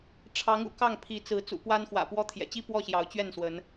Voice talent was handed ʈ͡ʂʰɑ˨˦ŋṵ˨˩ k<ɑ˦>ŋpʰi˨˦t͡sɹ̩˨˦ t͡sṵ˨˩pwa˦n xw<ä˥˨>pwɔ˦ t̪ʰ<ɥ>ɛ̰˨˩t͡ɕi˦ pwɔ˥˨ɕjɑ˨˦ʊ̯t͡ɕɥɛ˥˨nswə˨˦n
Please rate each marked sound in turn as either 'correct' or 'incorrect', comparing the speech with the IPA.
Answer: incorrect: ɑ˥˨, incorrect: ä̰˨˩, incorrect: j

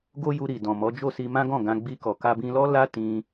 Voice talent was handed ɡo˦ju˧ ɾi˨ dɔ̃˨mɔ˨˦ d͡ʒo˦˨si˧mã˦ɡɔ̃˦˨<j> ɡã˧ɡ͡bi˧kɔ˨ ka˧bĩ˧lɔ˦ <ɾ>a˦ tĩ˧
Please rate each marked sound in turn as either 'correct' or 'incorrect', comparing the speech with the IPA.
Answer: incorrect: none, incorrect: l

